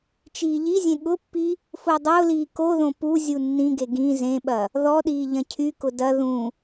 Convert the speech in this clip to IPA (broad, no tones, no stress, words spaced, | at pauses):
t͡ʃiːʎizʲẽ ɠʊpːi | fʊːdˤʊːliː koðõ pu zʲunːĩɡe ɡĩ zẽɓɐ | ðɔɗiː ʎɐ̃cʰykʊ dɐ ðũ